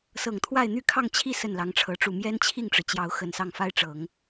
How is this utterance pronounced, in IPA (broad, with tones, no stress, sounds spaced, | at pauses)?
s ɤ˨˩ ŋ t̪ʰ w a˥˧ ɪ̯ n̪ y˥˧ kʰ ɑ˥˧ ŋ t͡ɕʰ i˥˧ s ə˥˩ n l ɑ˧˥ ŋ ʈ͡ʂʰ ɤ˧˥ ʈ͡ʂ u˥˩ m j ɛ˥ n t͡ɕʰ i˥˩ ŋ ʈ͡ʂ ɻ̩˩ t͡ɕ j ɑ˧˥ ʊ̯ x ə˨˩ n s ɑ˥˩ ŋ f a˥ ɪ̯ ʈ͡ʂ ɤ˨˩˦ ŋ